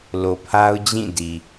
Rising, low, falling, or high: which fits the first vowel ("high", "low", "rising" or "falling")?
low